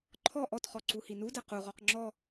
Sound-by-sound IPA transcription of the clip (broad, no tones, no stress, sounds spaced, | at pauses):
ǃʰ ɔ ʔ ɔ t χ ɔ ǀ u h i n u d ɛ q u ʁ ɔ q ŋ͡ǁ ɔ